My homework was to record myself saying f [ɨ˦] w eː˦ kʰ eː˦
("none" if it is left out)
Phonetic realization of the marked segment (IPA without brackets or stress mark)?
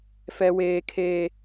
ɛ˦